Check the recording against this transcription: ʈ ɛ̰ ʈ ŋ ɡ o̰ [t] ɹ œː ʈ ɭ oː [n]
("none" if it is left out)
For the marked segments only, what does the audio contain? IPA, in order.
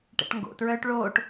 t, ʈ

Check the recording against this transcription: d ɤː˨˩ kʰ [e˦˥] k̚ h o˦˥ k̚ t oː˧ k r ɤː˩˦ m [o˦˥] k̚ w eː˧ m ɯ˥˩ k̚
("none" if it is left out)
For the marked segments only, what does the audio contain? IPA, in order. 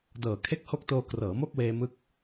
e˦˥, o˥˩

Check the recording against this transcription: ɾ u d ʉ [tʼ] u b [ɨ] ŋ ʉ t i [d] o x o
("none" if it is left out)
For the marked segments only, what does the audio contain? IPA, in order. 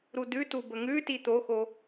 t, ə, t̪

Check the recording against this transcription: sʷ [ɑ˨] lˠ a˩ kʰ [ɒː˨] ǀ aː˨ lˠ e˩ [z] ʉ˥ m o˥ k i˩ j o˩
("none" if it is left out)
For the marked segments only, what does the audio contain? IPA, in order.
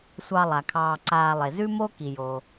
ɑ˨, ɑː˨, z

